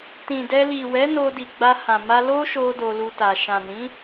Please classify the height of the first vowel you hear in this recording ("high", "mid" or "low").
high